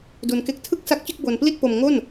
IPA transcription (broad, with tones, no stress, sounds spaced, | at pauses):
d u˧ n k e˦˥ k̚ tʰ ɯ˥˩ k̚ s a˦˥ k̚ t͡ɕ ɯ˥˩ k̚ b o˧ n p l i˥˩ t̚ p o˧ m ŋ o˥˩ n